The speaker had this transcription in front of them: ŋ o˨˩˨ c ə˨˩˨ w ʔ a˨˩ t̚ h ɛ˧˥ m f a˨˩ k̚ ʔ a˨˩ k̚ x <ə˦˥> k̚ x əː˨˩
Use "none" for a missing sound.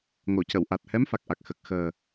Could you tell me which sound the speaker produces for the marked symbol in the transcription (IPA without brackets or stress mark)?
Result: ə˨˩